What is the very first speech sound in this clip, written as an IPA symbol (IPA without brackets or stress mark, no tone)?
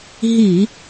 ɦ